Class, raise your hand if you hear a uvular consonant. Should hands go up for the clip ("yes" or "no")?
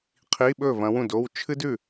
yes